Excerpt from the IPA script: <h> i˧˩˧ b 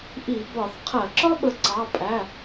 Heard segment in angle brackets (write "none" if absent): ʔ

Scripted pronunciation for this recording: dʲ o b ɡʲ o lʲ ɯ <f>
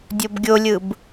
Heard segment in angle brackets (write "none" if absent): b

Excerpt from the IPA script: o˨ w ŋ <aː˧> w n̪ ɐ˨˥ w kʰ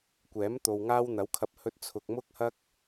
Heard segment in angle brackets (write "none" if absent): aː˧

